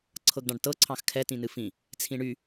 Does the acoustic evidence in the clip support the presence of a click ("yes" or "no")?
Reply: yes